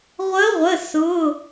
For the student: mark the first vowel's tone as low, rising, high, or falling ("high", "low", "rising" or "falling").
rising